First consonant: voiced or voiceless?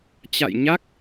voiceless